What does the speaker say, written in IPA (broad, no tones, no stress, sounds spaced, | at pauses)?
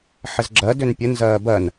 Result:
ħ ɘ z ɡ͡ǁ ɜ d ʏː n pʲ ə n z ɜː b ɜ n